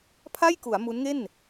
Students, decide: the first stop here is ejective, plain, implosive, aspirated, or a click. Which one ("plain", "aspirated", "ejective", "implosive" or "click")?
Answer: aspirated